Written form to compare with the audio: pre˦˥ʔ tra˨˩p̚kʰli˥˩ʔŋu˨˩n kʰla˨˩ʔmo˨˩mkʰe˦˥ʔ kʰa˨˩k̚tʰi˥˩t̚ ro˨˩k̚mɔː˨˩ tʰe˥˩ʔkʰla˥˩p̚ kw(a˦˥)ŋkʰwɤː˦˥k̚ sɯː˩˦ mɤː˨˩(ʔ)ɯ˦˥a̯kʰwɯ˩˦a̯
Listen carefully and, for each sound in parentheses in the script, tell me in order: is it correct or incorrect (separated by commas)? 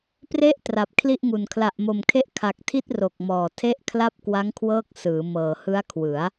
correct, incorrect